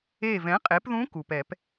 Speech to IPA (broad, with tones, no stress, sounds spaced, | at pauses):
e˧˩ v ɛ̃˩˥ qʼ e˩˥ p ð ũ˧˥ k u˩ p ɛ˨˩˦ p